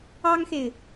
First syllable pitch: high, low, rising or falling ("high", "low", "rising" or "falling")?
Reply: high